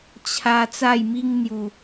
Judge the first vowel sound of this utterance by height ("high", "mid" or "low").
low